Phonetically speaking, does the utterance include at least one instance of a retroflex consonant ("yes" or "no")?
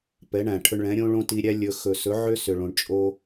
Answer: yes